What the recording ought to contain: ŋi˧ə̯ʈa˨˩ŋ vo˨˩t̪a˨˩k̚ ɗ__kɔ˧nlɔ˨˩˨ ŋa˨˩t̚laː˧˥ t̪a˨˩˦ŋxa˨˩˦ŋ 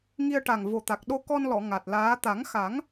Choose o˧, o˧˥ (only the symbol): o˧